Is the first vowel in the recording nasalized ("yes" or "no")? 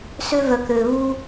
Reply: no